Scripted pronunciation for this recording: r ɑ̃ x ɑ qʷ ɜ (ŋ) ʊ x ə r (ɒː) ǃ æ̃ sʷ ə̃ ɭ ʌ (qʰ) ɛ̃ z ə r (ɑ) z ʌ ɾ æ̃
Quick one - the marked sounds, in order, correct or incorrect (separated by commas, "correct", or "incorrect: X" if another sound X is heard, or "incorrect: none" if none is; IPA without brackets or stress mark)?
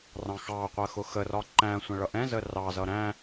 incorrect: x, incorrect: ɒ, incorrect: ʔ, correct